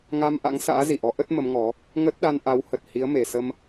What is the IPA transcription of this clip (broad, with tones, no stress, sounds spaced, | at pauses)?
ŋ a˧ m ʔ a̰˧˥ ŋ s a̰ː˧˥ z i˧˩ ʔ ɔ˨˦ ʔ ə˦˥ t̚ m ə˨˦ m ŋ ɔ˨˦ | ŋ ə˦˥ t̚ ɗ a˧ n ʔ a˨˦ w h ə˨˩ t̚ h i˨˦ ə̯ m e˨˩ s ə˧ m